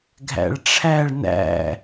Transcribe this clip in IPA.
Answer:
ɡʱ æ̰ ɭ ʈ͡ʂʰ æ ɭ n æ̰

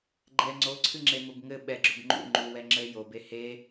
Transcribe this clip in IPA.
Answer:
ɡ͡ǃ ɛ ŋ͡ǀ o ǀʰ ɨ ŋ͡ǁ e m ʊ b ŋ ɘ ɓ ɛ ɡ͡ǁ ʊ b ŋ͡ǃ ṵ ŋ͡ǃ u w ɛ ŋ͡ǁ ɘ j o b e h e

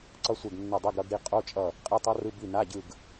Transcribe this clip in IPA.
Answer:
ǀ ʌ˦˥ sʷ e˦˨ ɡ nː ʌ˦˨ dˤ ɛ˧˥˧ ɡ ɾ ʌ˦˥ ɡ ɾ i˦˥ qʼ o˧˥˧ t͡ʃʼ ʌ˦˨ | qʼ e˧˥˧ tˤ ʌ˦˥ r ɯ˧˥˧ b i˦˨ n a˧˥˧ ɟ ɯ˦˨ ɡ

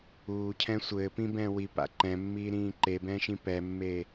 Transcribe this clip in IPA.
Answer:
uː cʰ ɛ̃ sʷ ɘː p ĩ b ɛ̃ː w i p a̰ ǃ ɛ̃ mː iː ɾ ĩː ǃ e b ɛ̃ː ʃ ĩ p ɛ mː e

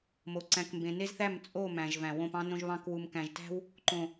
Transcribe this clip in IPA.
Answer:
m o˨ ǀ æ̃˨ k m b ẽ˨ n e˦ z θ æ˦˨ m t͡sʼ o˦˨ m æ̃˨ ʒ v æ̃˨ w õ˦˨ p ɑ̃˦ n õ˦ ʒ β ɑ̃˦ k w u˨ m k æ̃˨ ʒ t æ̤˦ w | ǃ õ˨

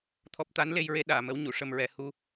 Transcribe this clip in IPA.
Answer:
t̪ʰ ɔ˦˥ p̚ t̪ a˧˥ n l e˧ j ɹ e˧˥ ɗ aː˨˩˨ m ə˧˥ w ɲ u˨˩˨ ʂ ə˧ m ɹ ɛ˨˩˦ h u˧

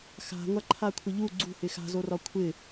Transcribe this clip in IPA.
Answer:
x a̤ ŋʷ a ǃʰ a kʷʰ ɪ ʎ u ɡ͡ǀ ṳ h ɪ x a̤ z o r ɒ kʷʰ ɪ

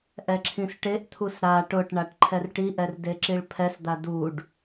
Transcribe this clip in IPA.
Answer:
ʔ ɛ ǁʰ ĩ s ʈ e ʔ t̪ʰ u s ɾ a ʈ ʊ ʈ ɳ a ʈ ǃʰ ɛ r ʈ i ʔ ɛ r d e ǁ i ɭ pʰ ɛ s d̪ a d u ɖ

